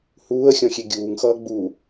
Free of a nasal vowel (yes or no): no